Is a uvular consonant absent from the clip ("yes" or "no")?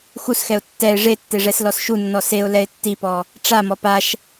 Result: yes